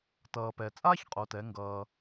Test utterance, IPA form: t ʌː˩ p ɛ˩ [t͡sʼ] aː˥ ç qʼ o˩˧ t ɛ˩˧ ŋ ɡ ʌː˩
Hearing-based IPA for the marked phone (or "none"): t͡sʼ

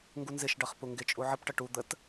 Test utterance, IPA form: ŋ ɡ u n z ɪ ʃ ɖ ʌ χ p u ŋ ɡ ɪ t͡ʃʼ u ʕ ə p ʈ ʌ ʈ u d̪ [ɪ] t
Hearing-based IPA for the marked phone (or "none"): ə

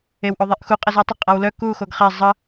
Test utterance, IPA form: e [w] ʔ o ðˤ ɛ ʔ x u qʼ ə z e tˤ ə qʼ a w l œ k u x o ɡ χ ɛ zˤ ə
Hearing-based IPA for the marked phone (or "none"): w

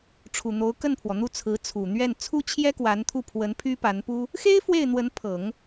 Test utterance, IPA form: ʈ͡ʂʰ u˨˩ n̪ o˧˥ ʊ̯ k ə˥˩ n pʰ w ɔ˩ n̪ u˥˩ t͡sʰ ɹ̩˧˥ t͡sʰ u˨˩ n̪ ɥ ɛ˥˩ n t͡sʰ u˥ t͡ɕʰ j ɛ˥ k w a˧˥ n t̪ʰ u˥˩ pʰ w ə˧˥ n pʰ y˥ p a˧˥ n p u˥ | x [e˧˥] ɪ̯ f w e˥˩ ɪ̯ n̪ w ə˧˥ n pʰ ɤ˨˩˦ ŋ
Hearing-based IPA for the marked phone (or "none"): e˥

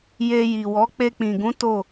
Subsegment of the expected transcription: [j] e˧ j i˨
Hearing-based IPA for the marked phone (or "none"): j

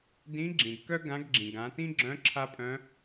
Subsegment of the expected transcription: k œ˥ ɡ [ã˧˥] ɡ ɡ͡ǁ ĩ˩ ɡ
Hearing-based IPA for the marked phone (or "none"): ã˧˥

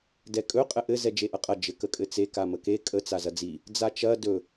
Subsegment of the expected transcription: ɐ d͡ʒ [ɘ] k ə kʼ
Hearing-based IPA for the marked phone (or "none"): ɘ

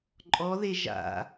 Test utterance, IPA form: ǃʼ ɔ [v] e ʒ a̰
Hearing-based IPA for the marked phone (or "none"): ð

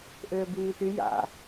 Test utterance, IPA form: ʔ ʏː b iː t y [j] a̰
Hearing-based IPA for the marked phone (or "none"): j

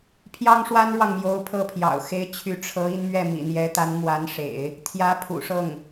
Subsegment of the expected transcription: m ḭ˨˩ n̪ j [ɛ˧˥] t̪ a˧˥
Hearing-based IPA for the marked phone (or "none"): ɛ˧˥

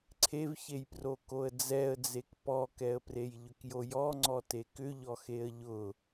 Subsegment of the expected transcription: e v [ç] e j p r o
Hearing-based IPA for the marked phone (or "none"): ç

